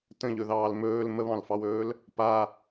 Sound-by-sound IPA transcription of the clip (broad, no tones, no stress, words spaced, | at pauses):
tə̃ʎɵðɑːl mɵːl məβɑ̃lfɑwɵːl | pa